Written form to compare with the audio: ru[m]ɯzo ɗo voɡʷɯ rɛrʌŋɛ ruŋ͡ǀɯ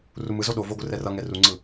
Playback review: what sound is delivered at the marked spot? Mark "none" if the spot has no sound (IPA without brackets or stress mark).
m